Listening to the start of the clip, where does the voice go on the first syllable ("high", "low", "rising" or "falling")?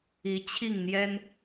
rising